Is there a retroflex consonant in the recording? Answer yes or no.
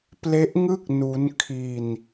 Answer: no